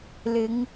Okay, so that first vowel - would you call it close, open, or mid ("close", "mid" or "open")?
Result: close